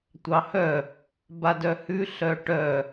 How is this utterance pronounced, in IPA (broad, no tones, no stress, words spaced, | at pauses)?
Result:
tʷɑhœ | badœhʉ ɬœʈœ